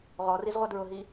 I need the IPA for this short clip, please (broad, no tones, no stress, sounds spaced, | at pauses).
ʁ ɔ r i z ʁʷ ʌ d ɹ ʊ ɦ i